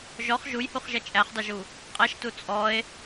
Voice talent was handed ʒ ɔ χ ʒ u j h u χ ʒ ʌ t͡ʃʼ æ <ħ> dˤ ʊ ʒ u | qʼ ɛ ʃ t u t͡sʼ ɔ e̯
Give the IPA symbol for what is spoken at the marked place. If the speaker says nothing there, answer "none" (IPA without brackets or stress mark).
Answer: χ